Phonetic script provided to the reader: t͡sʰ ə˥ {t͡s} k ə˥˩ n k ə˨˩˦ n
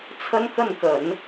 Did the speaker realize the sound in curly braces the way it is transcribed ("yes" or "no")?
no